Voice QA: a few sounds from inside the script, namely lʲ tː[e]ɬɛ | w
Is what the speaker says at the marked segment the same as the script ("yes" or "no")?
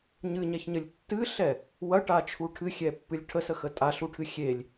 no